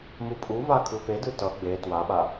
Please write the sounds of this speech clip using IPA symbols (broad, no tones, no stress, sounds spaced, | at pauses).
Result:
m u pʼ u v a kʰ ɯ f e d ɯ t ʌ ɡ͡b e t w a ɓ a